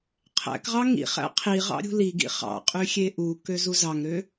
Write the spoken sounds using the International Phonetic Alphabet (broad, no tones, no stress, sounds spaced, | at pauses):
qʰ æ̰ k ʁ ɑ ŋ ḭ χ æ̰ qʰ i ʁ ɑ̰ ɾʲ ṳ l i ɡ ḭ χ ɑ̰ qʼ y xʲ e ʔ u k ø z u z ɑ ŋ ɾ ø